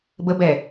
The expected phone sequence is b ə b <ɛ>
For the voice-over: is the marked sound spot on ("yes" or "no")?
yes